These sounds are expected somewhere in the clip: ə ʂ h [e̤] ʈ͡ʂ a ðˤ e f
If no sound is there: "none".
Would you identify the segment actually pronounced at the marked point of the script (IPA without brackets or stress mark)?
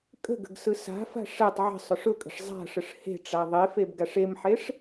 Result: e̤